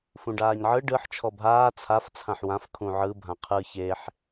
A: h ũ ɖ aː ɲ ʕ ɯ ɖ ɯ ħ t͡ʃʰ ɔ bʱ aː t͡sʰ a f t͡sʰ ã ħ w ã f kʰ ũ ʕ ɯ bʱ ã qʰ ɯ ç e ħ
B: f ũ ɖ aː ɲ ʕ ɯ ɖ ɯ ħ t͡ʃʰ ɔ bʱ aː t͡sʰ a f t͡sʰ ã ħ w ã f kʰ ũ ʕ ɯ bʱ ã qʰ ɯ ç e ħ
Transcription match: B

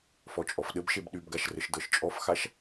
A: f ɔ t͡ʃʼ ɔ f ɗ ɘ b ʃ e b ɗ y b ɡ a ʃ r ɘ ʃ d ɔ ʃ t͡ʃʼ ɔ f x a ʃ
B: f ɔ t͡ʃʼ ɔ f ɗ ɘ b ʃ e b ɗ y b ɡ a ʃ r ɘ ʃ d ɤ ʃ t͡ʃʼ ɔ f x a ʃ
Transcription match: B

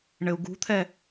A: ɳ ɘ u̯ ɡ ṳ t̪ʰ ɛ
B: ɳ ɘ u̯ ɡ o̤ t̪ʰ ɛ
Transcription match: A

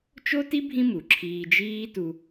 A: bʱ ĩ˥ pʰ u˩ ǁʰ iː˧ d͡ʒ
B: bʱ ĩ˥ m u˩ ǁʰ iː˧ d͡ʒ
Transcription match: B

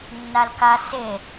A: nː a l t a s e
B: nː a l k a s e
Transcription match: B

